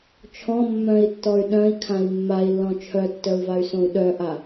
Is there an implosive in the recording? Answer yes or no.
yes